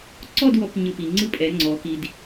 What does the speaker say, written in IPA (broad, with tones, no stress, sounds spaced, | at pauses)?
ǀ ɔ˥˧ d w ɔ˧ p ɲ ɯ˧ p i˩˧ ŋ͡ǀ ɯ˥˧ pʼ ɛ˩˧ ŋ͡ǀ ɔ˩˧ k i˧ d